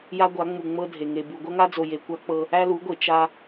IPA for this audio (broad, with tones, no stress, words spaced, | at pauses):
ja˦ ɡʷa˨˦ŋ͡mu˨ ŋ͡mɤ˦dʱe˨ ŋe˨bu˨ ɡʷɐ˦ŋa˦d͡zo˨ je˨kʷa˦ k͡pɤ˦ | æ˦lu˨˦ɡʷe˨ t͡ʃa˦